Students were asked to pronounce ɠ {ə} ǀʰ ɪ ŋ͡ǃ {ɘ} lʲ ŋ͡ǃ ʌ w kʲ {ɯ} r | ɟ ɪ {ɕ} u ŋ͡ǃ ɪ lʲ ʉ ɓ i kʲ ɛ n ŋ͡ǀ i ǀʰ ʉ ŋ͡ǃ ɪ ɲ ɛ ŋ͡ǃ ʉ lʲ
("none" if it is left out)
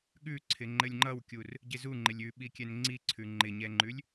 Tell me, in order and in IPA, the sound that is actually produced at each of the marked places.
ʉ, ɘ, u, z

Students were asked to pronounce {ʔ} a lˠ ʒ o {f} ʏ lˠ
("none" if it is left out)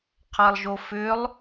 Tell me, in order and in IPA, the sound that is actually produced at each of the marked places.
qʰ, f

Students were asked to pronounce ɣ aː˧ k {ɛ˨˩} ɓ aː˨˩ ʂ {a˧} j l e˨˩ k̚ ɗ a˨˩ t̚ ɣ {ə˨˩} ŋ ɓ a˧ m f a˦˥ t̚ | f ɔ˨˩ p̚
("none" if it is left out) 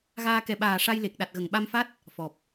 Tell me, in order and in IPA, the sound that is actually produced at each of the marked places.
ɛ˨˩, a˧, ə˨˩

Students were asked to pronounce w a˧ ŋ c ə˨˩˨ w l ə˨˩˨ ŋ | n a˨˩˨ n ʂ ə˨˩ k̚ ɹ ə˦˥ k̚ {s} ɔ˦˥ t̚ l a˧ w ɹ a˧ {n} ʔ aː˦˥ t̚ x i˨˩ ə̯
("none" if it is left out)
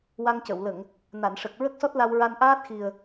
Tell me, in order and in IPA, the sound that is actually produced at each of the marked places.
s, n

